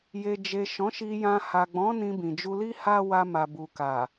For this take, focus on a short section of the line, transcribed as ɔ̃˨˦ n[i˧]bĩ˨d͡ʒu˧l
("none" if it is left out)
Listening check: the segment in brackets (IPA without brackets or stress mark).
ĩ˧